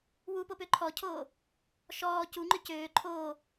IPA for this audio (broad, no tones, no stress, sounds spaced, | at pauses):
w u p o p ø ǃʰ ɔ cʰ oː | ʃ ɔː c u ŋ͡ǃ ʏ c øː ǃʰ oː